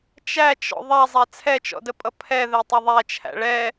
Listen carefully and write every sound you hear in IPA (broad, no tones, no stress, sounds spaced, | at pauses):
t͡ʃ æ t͡ʃ ɔ̰ ðˤ a zˤ æ t͡sʰ ɛ t͡ʃ ɔ̰ d ə pʼ ʌ pʰ ɛ ð ɛ tˤ ə ðˤ æ t͡ʃʰ æ̰ ɭ ɛ